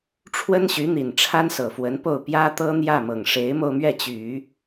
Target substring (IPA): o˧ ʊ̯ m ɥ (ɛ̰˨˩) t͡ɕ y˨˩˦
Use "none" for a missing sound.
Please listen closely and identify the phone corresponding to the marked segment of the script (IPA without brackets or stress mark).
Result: ɛ˥˩